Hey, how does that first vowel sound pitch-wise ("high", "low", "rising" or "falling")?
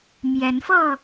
rising